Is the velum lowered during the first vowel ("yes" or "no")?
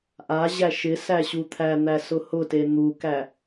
no